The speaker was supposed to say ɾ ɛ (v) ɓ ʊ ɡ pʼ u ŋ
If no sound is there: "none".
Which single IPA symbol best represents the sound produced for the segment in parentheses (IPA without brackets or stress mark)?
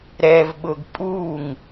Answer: v